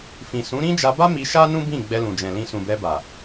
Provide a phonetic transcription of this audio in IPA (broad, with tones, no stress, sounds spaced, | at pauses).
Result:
f ĩ˨ s ũ˨˦ ɾ ĩ˦ d͡ʒ a˧ b a˦ m i˧ ʃ a˦ n ũ˦ b ĩ˦˨ ɡ͡b ɛ˧ l ũ˨ d͡ʒ ɛ̃˨ l ĩ˧ s ũ˨ b ɛ˧ b a˨